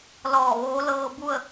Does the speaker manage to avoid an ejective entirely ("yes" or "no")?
yes